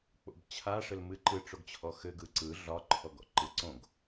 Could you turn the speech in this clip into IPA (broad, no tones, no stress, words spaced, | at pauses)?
k͡po̰bt͡ɕʰaʂɘl mɨǃɯʈ͡ʂoɡt͡ɕʰɔ xɘɡɯ ǀɯ ɮɒǃʰɔɡɔ̰ ǃɯǀõɡ